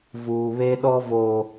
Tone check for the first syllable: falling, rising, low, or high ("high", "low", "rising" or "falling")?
low